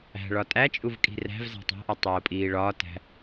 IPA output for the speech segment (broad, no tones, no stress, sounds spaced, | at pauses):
æ̤ ɭ ɒ tʼ æ t͡ʃʼ u v kʼ i̤ r æ̤ v z æ̤ tˤ æ̤ ʔ ɒ tˤ oː pʼ iː ɭ ɒː t æ̤